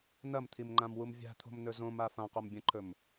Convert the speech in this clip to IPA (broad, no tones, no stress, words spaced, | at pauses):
nɐmt̪ʰimŋ͡ǃãmwum vʲa̤t̪ʰo̤mnɵ zõma fãqombʲɐ̃ǃʰɵm